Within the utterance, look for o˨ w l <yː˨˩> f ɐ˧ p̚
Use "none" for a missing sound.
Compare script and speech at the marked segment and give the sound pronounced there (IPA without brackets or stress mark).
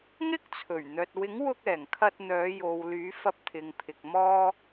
yː˨˥